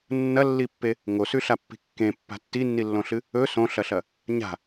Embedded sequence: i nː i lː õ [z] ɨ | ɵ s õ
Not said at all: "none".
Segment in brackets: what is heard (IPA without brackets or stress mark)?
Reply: ɬ